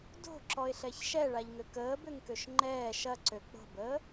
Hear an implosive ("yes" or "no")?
no